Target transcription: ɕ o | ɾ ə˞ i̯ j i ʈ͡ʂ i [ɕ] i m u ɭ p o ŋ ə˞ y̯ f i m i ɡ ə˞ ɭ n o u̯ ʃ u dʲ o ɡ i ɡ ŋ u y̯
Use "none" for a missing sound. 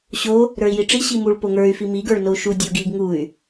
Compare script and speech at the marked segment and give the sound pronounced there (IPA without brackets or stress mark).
ɕ